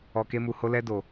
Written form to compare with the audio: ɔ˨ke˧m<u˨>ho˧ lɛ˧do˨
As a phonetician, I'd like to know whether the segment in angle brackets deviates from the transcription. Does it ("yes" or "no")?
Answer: no